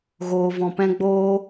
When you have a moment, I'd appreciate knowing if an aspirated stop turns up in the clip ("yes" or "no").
no